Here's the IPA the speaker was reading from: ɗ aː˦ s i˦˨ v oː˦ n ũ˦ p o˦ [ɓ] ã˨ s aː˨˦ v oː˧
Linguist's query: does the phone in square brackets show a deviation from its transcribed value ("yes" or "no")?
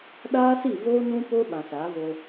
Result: no